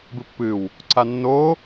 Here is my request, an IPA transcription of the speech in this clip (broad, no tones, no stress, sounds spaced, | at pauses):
b ɨ pː ɨ w | ǀ a nː o